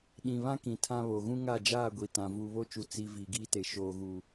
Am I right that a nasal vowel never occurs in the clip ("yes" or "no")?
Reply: no